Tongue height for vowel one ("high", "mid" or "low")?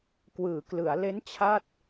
high